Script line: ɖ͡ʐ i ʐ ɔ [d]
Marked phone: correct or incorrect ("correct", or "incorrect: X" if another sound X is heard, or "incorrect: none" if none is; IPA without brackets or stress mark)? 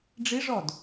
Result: correct